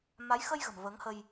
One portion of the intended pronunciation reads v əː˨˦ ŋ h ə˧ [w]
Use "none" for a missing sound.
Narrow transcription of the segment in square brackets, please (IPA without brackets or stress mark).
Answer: j